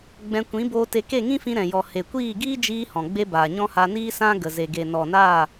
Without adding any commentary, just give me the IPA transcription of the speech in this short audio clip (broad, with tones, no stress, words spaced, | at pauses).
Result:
ɡ͡bɛ̃˧ kʷĩ˨˦boː˧te˧ ke˦˨ŋĩ˦fĩ˧ ɾɛ̃˨jɔ˨ he˨kʷiː˦˨ ɡiː˦d͡ʒiː˧ hɔ̃˨ɡ͡be˦ baː˨ɲɔ̃˦ha˧ niː˧ sã˦ɡə˨ ze˨ɡe˨nɔ˨naː˦˨